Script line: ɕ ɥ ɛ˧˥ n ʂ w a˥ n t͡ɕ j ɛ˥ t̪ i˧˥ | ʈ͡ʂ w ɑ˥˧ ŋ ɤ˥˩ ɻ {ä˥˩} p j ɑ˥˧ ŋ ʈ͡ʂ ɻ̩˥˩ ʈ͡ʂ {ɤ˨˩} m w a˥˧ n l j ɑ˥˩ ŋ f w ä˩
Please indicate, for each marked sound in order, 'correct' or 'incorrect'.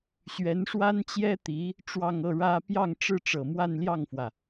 incorrect, correct

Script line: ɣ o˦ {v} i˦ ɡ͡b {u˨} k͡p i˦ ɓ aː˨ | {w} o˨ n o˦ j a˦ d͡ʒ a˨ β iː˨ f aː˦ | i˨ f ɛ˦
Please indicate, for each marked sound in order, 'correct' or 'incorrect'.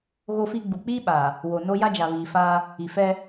incorrect, correct, correct

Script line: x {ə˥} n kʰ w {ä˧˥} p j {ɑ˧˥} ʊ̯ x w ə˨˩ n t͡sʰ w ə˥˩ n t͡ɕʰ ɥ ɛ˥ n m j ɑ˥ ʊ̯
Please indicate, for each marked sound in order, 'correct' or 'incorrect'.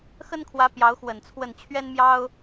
correct, correct, correct

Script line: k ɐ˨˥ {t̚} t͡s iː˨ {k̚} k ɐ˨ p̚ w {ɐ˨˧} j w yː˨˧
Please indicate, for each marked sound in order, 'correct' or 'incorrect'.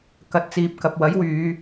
correct, incorrect, incorrect

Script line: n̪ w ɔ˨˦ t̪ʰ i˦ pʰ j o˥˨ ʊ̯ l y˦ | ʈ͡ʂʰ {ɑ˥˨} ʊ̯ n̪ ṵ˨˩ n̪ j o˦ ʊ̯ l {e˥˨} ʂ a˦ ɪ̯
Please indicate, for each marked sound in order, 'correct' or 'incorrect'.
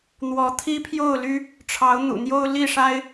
incorrect, incorrect

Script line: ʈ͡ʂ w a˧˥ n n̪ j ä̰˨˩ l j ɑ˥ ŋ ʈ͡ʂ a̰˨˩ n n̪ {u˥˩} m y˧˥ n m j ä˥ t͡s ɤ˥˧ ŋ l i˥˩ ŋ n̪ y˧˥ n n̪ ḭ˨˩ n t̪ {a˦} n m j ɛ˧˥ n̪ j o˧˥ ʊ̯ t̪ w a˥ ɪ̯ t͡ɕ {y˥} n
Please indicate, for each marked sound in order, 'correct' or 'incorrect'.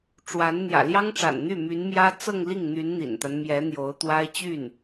incorrect, correct, incorrect

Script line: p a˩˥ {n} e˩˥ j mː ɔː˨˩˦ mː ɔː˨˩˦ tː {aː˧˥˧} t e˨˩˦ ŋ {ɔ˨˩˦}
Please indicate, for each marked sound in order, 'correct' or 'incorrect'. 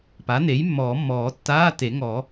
correct, correct, correct

